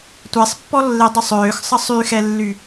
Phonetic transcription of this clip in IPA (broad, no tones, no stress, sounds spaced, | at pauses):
tʷ ɛ sˤ pː ɔ lː e dˤ u sˤ øː x sˤ ə sˤ y x ɛ lː y